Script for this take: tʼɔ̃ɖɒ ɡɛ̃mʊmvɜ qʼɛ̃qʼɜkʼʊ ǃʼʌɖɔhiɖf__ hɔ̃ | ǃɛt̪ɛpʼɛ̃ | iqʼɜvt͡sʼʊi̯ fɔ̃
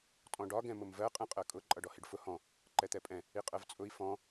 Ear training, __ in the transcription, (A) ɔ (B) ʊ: B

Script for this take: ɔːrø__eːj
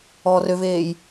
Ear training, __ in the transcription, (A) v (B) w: A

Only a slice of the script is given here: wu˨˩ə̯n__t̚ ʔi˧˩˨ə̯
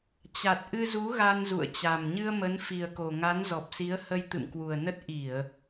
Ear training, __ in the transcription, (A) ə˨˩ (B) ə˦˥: B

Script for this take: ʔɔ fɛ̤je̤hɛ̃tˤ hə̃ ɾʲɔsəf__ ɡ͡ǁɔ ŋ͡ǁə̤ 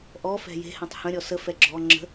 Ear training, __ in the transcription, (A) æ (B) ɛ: B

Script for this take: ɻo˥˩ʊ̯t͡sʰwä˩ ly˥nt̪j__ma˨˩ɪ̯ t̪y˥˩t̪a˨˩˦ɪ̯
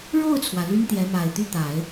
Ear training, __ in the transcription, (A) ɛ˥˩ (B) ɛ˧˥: B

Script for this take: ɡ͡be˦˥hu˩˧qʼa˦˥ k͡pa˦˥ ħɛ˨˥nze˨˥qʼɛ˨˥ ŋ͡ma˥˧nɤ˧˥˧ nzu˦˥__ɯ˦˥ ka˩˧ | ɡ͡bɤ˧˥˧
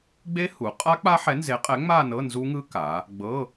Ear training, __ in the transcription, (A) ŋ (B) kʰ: A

